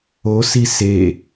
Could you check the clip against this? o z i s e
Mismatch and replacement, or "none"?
z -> s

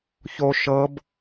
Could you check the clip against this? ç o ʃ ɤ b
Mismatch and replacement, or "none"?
none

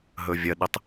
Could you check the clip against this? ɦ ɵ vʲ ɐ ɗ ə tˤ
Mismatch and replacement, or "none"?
none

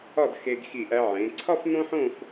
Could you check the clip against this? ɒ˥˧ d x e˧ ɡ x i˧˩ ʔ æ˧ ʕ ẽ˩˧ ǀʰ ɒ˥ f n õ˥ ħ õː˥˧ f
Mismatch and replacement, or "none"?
none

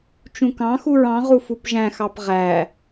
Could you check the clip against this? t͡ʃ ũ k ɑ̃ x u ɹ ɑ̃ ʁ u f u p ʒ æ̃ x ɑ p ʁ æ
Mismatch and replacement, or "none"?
none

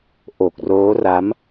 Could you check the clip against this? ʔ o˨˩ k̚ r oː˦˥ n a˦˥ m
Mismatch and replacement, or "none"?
n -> r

